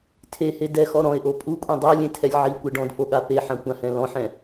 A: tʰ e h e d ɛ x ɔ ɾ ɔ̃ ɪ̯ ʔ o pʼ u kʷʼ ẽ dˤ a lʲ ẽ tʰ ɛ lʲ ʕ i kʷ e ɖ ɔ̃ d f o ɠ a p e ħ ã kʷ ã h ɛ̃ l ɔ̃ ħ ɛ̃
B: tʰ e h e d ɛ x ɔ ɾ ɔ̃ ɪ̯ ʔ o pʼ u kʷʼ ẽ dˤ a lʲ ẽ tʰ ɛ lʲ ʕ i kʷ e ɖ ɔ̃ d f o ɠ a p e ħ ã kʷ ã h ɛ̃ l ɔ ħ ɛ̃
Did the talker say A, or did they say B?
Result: A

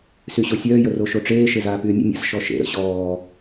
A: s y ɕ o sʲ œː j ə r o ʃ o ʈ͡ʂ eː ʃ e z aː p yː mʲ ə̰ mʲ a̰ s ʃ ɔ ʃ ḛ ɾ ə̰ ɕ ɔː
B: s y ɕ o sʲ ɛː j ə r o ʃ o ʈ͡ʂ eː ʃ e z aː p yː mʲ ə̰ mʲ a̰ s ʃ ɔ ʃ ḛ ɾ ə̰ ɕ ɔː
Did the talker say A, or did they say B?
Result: A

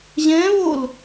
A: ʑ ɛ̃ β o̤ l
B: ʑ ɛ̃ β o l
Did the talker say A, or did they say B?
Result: B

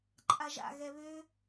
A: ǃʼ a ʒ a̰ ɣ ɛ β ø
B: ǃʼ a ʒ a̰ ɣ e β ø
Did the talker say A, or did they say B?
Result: A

